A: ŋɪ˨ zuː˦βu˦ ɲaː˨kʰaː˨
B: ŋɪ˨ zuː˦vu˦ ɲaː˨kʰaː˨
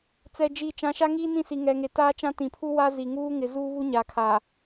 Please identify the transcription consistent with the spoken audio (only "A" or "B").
A